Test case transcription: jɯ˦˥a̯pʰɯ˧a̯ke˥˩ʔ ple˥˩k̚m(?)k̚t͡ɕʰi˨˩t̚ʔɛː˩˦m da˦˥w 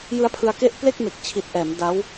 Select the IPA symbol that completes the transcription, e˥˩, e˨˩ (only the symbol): e˨˩